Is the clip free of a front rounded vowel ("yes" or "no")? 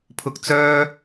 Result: no